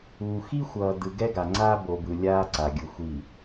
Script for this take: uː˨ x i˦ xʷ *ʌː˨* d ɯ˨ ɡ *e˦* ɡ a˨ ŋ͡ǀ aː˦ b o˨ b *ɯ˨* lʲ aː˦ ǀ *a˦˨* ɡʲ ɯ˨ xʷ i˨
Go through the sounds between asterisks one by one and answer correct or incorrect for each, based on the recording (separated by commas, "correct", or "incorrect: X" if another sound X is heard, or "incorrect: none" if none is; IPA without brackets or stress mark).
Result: correct, incorrect: ɛ˦, correct, incorrect: a˨